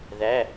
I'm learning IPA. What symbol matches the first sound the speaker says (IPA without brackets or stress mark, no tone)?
ð